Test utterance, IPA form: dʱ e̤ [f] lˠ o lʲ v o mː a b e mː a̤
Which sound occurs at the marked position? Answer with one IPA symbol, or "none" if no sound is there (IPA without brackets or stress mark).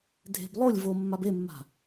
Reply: b